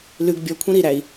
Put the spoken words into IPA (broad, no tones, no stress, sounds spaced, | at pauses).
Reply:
l ʉ ɡ bʲ ɔ kʷʰ ĩ ɾ i ɾ æ i̯